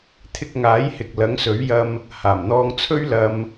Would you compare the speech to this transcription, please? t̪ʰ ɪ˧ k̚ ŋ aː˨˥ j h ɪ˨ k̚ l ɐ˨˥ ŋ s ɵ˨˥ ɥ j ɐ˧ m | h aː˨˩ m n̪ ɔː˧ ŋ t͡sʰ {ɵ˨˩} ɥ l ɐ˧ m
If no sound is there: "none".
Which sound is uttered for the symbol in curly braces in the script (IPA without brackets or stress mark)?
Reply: ɵ˥